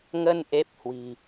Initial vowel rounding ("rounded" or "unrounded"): unrounded